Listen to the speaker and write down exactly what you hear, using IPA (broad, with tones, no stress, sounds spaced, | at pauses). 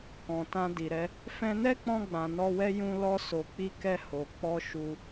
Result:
k ɔ̃˨ t ã˧ d i˨ ɾ ɛ˨˦ | f ɛ̃˧ n ɛ˦ k͡p ɔ̃˧ ɡ͡b ã˨ n ɔ˧ w ɛ˦ j ũ˧ l ɔ˧ s o˨ k͡p i˧ k ɛ˧ h o˨ k͡p ɔ˧ ʃ u˧